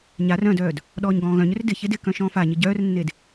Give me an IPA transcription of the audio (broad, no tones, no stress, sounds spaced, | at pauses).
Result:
ɲ a r œ̃ d œː d | ɗ ɔː ɲ ɡ ɔ̃ː ɣ œ̃ ɲ ʏ r d ɪ ç e d ɪ k œ̃ ʃ ɔ̃ː f a ɲ ɪ ɟ œː r nː e d